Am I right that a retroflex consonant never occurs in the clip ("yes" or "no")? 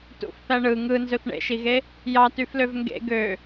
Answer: no